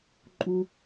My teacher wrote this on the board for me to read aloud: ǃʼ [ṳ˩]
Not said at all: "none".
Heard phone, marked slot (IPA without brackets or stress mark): u˩